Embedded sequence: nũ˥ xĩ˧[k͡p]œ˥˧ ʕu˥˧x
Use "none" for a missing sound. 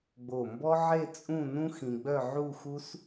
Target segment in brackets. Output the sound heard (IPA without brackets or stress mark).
ɡ͡b